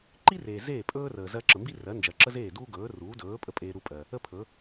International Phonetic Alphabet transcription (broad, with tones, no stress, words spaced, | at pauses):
ǃi˥reː˩ zeː˥˩pʼɵː˥ rəː˩ zɜ˧ǁə˩mbi˥ rɜ˩˥nd͡ʒɜ˩ǁə˥zeː˥˩ duː˥ɡɵː˩˥ruː˩˥ dɵː˩˥ pʼə˧pʼeː˧ɾu˧pʼɜ˩ | ə˥pʰɵ˩˥